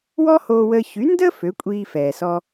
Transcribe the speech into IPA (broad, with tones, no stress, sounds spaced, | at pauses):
w ɔ˥ h oː˧ w əː˧ ç y˩˥ n d əː˥ f ø˩˥ kʷʼ iː˧ f ɛː˩ s ɔ˧